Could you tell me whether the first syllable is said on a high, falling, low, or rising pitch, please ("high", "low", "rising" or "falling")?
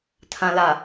low